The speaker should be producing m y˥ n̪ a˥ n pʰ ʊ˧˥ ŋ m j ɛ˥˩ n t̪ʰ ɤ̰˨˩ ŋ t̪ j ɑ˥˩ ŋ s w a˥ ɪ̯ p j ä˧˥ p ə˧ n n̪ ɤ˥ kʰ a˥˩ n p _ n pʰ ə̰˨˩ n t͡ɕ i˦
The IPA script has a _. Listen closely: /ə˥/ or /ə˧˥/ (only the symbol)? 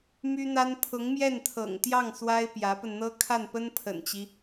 ə˥